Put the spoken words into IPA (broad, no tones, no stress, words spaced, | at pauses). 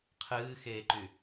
qʰɨːxeːǃy